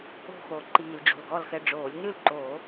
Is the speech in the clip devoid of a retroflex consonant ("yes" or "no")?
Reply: no